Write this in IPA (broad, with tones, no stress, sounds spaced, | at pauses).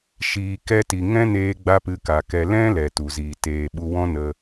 ʃ iː˨ k ɛ˧ t i˨ ŋ ɛ̃˦ n eː˧ ɡ͡b a˦ p ɨ˧ k a˨ k ɛ˧ l ɛ̃˦ l ɛ˨ t u˨ z iː˨ t eː˨ ɓ u˧ w ɔ̃˦ n ə˧